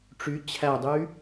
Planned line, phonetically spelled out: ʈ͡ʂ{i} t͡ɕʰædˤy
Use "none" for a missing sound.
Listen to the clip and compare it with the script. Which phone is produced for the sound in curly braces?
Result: y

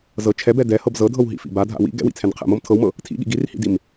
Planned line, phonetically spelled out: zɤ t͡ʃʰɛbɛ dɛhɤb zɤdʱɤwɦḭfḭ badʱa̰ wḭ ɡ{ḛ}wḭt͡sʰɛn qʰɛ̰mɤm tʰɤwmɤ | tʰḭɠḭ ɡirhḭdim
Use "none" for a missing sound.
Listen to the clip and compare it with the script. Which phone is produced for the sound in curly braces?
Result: ɛ̰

